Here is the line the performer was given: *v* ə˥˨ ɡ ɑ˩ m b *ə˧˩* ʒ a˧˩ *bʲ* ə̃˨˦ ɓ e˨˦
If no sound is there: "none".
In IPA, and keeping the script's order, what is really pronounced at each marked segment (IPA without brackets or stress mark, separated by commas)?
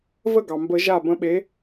v, ə˨˩˦, b